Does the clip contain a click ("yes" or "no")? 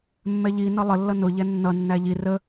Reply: no